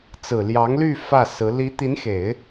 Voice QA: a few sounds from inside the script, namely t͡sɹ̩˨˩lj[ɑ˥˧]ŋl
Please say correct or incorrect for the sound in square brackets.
incorrect